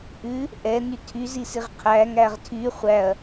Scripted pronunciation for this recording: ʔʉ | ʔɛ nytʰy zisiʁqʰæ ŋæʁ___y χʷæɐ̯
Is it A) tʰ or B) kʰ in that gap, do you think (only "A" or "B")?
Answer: A